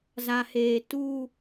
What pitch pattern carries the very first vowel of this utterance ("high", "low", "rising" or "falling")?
low